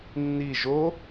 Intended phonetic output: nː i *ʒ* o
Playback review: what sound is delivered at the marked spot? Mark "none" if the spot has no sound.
ʒ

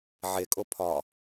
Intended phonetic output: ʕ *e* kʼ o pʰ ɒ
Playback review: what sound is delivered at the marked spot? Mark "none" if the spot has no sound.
e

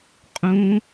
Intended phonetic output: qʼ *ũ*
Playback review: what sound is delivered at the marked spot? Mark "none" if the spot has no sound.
ũ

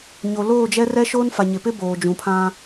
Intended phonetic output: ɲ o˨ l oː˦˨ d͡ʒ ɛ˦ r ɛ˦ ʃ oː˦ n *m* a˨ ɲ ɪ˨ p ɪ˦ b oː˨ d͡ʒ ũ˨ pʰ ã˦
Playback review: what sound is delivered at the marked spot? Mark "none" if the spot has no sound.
f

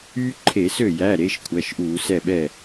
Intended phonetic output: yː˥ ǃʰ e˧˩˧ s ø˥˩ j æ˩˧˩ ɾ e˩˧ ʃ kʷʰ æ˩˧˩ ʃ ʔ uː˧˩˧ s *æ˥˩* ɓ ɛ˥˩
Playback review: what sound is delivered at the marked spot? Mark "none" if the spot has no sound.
ɛ˥˩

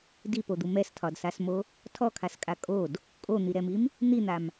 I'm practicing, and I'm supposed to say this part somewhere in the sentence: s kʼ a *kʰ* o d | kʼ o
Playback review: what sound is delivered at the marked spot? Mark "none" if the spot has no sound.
kʼ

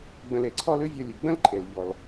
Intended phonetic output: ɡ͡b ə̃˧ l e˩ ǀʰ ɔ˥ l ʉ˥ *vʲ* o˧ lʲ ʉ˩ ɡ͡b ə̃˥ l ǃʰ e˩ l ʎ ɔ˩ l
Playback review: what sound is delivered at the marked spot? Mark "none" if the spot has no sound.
vʲ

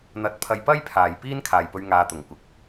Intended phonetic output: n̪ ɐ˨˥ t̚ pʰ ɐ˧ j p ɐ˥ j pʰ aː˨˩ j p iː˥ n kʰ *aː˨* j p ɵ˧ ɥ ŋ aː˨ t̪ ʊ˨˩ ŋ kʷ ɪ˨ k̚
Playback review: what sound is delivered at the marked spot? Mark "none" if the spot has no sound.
aː˨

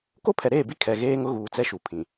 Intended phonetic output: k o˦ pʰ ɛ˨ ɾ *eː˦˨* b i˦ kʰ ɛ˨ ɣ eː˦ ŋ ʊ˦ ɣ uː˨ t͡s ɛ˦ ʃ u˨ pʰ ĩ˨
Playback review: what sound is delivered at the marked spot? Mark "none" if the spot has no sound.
eː˦˨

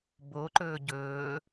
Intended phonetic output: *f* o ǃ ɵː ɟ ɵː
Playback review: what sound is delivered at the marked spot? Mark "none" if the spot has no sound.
b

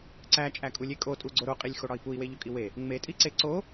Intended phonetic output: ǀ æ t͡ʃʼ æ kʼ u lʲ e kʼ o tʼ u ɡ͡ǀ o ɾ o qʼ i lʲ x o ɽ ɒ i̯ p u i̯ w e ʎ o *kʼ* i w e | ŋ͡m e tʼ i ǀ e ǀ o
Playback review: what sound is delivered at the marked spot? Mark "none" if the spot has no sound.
kʼ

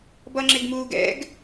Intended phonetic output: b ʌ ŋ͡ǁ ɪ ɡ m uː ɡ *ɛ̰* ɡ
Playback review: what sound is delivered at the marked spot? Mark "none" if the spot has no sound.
ɛ̰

